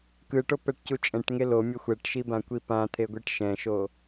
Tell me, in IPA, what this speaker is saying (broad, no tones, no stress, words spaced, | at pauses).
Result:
kɯʈo pɛʈcut͡ʃʼɛ̃ʈŋe lomʲʌ xʷɛʈʃi bãkʷipãt̪ʰe ɡʷiʈʃɛ̃ʃo